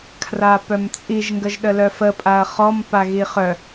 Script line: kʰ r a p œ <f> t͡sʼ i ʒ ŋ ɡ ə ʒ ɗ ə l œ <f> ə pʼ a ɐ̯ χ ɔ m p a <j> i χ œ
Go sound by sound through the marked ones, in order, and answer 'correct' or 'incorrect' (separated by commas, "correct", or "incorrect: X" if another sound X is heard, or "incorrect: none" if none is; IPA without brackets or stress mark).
incorrect: m, correct, incorrect: ɣ